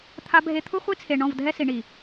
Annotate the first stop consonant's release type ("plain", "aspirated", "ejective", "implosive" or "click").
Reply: aspirated